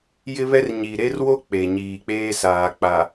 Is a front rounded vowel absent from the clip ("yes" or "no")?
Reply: yes